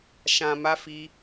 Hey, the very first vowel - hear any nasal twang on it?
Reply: yes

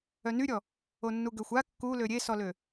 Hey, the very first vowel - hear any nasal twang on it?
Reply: no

